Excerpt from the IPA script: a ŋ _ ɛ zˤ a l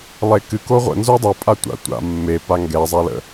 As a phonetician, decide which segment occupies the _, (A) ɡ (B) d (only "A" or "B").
A